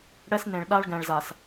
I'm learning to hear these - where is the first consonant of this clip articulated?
retroflex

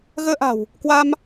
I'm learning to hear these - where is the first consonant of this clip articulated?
velum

